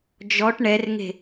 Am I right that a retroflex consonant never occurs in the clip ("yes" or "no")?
no